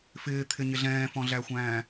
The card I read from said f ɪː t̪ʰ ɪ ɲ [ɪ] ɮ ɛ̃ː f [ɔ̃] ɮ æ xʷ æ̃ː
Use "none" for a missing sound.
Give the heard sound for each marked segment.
ɪ, ɔ̃

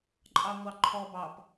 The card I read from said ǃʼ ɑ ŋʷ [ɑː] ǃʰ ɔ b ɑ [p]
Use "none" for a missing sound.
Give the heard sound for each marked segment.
ɑ, p

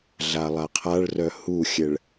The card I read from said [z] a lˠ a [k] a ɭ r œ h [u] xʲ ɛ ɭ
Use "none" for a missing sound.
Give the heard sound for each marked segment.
ɮ, qʰ, u

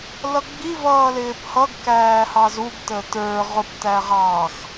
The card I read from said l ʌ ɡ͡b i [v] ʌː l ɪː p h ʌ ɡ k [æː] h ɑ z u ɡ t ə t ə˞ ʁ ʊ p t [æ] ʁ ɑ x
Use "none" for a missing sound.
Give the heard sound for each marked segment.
v, æː, æ

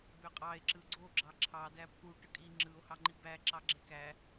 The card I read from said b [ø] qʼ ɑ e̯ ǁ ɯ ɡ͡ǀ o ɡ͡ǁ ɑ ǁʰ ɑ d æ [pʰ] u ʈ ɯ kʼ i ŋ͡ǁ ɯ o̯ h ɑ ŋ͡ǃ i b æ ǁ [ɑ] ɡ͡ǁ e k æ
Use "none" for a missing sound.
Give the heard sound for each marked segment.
ø, pʰ, ɑ

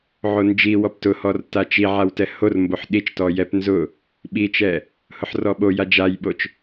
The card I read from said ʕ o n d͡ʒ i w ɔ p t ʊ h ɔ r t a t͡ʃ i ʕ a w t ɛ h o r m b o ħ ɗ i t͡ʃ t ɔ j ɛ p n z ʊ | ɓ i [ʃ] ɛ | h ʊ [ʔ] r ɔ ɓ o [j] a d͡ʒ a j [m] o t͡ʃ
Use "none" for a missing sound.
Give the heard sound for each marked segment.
t͡ʃ, ħ, j, ɓ

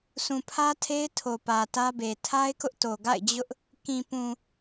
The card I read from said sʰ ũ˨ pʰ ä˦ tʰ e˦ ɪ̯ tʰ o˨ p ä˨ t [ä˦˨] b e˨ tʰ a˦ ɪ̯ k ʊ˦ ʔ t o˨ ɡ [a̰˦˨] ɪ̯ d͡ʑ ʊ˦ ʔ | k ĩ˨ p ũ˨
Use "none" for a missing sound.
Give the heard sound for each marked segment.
ä˦, a̰˦˨

